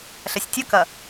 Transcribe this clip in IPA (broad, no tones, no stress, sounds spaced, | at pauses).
ɬ ɐ sʲ tʲ ɐ k ɐ